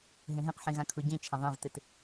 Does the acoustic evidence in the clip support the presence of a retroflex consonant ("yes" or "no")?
no